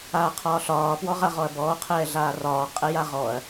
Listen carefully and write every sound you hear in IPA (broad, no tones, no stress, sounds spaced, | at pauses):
aː qʰ ɒː ɬ ɒː p w ɔ ʁ a ʁ ɔ ɐ̯ b ɔː qʰ ɛː ɮ aː r ɒː qʼ ɛ j a ʁ ɔ ɐ̯